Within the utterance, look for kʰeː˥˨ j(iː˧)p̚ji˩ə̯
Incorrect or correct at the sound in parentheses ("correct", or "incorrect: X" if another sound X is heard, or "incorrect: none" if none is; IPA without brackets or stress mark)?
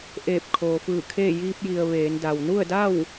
correct